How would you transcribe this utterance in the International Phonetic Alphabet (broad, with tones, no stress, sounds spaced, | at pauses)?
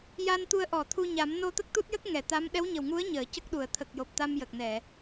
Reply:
j a˧ n t̪ u˧ ə̯ ʔ ɔ˨˩˨ t̪ʰ u˧ ɲ a˨˩˦ m n o˧ t̪ ə˦˥ k̚ t̪ u˦˥ t̚ j ə˦˥ k̚ ŋ ɛ˨˩˨ t̪ a˧˥ m ɗ ɛ˧˥ w ɲ ə˨˩ w ŋ u˧˥ ə̯ ɲ əː˨˩˨ c ə˦˥ k̚ ɗ u˨˩˨ ə̯ t̪ʰ ə˨˩ k̚ j o˨˩ p̚ t̪ a˧ m j ə˨˩ k̚ n ɛ˨˩˨